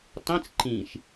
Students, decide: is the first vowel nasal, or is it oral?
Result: nasal